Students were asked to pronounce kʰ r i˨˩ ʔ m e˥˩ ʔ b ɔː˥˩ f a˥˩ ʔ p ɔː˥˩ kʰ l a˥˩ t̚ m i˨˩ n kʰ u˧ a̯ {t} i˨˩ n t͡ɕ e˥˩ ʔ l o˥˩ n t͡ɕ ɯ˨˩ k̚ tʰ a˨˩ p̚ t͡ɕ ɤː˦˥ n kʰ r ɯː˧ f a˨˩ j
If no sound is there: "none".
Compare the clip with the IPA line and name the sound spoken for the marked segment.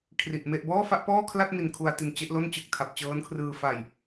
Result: t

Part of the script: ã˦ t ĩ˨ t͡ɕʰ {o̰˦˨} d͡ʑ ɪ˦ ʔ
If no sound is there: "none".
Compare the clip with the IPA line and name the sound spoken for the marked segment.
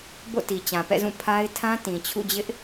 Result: ṵ˦˨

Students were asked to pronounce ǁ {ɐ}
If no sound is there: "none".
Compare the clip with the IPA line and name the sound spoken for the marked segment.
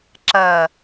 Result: ɐ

